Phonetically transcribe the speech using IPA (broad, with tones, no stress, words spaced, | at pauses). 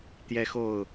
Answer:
t̪jɛ˦xo˥˨ʊ̯